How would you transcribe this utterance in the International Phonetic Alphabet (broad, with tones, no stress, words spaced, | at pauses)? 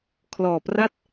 kʰlɔː˨˩pra˥˩t̚